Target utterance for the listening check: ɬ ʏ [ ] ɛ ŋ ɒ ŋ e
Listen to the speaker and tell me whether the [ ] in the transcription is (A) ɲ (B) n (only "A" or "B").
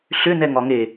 B